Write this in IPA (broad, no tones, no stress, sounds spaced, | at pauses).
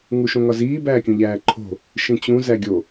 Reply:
ŋ u ʃ õ ŋ ɒ z iː b æː kʲ ũ ʎ æː ǃʰ o̤ | ʃ ĩ t͡ɕ ũ z æ ɡʲ o